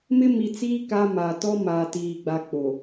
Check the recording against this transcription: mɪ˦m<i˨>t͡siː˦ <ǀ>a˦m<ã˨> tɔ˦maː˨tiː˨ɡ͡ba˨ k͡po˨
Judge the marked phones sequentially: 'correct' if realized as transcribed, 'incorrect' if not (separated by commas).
correct, incorrect, incorrect